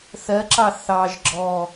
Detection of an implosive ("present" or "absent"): absent